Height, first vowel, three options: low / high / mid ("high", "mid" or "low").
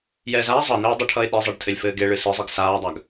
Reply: mid